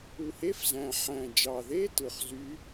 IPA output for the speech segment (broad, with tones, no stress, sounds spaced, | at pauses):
u˨˩ h e˧˥˧ f z æ̃˨˩ ħ æ̃˨˩ d͡ʒ ɑ˨˩ ð e˧˥˧ t ɯ˨˩ χ z y˧˥